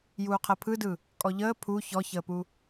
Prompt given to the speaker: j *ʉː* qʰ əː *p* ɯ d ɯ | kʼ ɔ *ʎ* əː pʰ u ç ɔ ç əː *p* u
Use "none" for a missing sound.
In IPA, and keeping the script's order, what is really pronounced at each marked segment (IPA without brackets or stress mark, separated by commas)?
uː, pʰ, ʎ, p